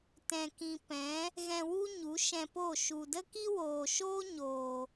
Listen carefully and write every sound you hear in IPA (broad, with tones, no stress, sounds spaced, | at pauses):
t ɛ̃˨ k ĩ˨ p ɛ̃˨˦ | ɣ ɛ̃˧ w u˦ ɲ u˨˦ ʃ ɛ̃˧ p o˦˨ ʃ u˨ d ə˦ k i˦ w oː˨ ʃ oː˦ ɲ oː˨